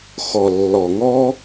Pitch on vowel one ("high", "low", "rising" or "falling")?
low